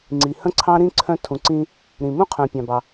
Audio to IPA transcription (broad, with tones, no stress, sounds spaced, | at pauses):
ŋ͡ǀ i˩ h ə̃˥ ǀʰ ɑ̃˥ ɾ ĩ˥ ǀʰ œ̃˧ tʰ ũ˩ ǀ ĩ˧ | ɾ ĩ˩ m ũ˥ qʰ œ̃˩ pʲ ɑ̃˩ b ɑ˩